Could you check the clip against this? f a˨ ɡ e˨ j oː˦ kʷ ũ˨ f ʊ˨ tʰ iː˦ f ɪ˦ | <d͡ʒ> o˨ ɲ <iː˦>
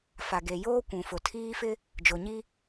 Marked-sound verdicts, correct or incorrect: correct, incorrect: i˦

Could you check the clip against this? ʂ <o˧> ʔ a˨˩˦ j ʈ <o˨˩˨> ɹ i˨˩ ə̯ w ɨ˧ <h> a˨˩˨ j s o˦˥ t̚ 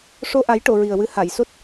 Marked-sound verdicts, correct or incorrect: correct, correct, correct

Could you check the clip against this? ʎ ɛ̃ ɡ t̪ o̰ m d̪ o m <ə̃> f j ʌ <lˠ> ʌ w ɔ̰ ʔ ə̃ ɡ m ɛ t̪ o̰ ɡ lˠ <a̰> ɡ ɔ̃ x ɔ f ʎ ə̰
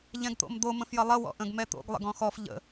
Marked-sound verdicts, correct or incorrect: correct, correct, incorrect: ə̰

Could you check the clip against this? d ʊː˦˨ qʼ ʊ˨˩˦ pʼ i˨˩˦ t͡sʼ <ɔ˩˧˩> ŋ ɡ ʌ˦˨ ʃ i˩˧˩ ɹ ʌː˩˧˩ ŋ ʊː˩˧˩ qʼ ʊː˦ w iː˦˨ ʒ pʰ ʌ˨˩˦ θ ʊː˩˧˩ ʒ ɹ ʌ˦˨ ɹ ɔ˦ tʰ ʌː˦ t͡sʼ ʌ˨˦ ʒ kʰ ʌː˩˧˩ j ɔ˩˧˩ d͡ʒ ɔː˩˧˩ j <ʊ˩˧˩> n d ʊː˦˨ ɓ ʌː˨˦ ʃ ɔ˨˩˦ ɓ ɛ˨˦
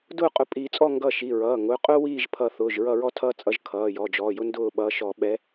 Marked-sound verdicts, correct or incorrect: incorrect: ɔ˦˨, incorrect: ʊ˦

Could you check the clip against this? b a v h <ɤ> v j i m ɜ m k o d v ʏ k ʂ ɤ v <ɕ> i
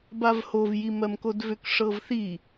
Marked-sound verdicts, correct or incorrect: incorrect: o, incorrect: θ

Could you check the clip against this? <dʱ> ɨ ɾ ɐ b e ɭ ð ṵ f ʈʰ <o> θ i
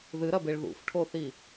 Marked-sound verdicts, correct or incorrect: incorrect: ð, correct

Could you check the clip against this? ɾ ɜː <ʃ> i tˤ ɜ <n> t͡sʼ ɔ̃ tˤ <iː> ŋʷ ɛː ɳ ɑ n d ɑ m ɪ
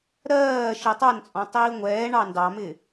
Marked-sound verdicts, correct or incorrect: correct, correct, correct

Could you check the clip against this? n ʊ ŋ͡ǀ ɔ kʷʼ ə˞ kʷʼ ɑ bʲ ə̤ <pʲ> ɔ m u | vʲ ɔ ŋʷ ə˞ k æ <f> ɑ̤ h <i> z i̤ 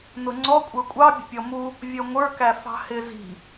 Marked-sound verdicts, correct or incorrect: correct, correct, incorrect: ɪ

